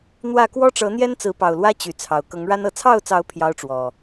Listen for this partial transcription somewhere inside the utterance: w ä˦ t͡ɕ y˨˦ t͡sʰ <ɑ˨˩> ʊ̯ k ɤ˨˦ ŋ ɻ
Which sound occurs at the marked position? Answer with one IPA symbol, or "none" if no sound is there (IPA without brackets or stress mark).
ɑ˨˩